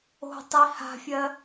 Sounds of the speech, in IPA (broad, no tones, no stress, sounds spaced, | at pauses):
o̤ tˤ i h a̤ fʲ ɜ